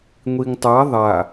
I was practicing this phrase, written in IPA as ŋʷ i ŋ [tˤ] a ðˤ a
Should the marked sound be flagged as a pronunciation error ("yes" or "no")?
no